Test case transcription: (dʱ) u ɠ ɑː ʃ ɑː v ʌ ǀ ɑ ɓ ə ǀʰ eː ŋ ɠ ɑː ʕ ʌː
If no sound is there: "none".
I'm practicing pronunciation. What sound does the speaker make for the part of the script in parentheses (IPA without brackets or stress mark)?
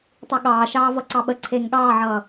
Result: tˤ